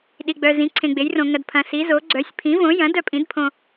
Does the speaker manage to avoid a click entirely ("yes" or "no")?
no